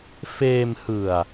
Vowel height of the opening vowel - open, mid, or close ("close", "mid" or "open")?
mid